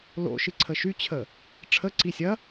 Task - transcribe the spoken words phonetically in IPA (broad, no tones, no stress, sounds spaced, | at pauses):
l o̰ ʃ ɨ ǀʰ ə ʃ y t͡ɕʰ ə | ʈ͡ʂʰ ə ǀ i sʲ ɐ